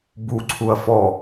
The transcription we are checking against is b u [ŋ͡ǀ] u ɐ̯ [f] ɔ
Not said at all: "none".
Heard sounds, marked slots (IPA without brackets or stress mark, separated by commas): ǀʰ, f